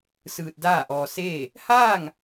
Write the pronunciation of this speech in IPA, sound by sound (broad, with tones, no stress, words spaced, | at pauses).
sɯː˧t̚daː˥˨ʔɔː˧ seː˥˨ | haː˥˨ŋ